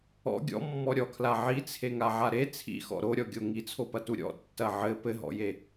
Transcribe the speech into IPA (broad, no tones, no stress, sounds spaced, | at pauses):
ɔ̰ ɡʲ ɔ̰ mː ɔ ɾʲ ɔ kʰ l a ʕ i t͡sʰ e ŋ a ʕ a ɾ e t͡sʰ ḭ x ɔ̰ ɾ o ɾʲ ɔ ɡʲ o ŋ i t͡sʰ o p ɐ t u ɾʲ ɔ̰ tː ɐ ʕ ɘ p ɘ ɦ ɔ̰ j e